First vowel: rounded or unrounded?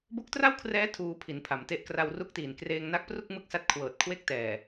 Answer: rounded